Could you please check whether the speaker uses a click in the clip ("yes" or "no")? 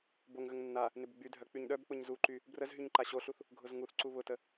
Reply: yes